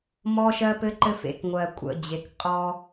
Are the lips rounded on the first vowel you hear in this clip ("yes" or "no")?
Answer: yes